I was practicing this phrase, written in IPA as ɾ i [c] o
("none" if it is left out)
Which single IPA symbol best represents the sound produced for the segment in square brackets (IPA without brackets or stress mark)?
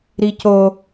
c